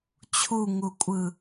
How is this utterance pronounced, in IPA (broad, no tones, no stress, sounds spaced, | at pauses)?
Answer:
t͡ɕʰ u ŋ u kʷʼ ɯ